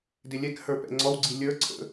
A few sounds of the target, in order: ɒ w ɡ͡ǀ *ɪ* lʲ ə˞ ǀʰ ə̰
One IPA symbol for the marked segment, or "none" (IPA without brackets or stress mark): i